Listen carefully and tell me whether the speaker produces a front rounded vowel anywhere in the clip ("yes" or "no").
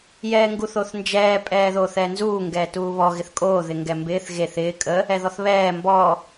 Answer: no